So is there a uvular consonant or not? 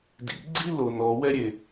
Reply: no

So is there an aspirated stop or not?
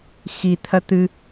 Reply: yes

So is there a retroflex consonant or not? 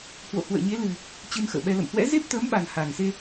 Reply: no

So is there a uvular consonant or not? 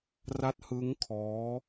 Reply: no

